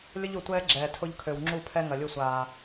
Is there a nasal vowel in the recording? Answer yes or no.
no